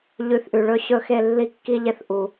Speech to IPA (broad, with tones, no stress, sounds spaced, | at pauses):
ʎ ʉ˨˦ θ ʔ ʉ˨ ɭ ɵ˦˨ ɕ ɵ˦ x e˦˨ lː i˦˨ kː i˦ ʎ e˦ θ ʔ u˨